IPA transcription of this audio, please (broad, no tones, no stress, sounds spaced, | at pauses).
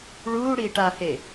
ɭ uː ɽ iː ʈ a h e